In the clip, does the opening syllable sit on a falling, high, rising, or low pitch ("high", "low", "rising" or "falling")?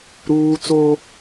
high